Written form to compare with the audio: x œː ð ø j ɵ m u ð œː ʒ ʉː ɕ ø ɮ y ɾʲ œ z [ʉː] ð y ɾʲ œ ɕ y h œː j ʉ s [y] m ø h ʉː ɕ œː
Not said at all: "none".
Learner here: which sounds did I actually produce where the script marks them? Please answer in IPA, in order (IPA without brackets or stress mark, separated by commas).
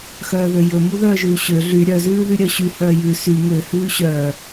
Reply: ʉː, y